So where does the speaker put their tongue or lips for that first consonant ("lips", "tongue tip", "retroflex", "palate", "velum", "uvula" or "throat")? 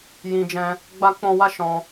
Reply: palate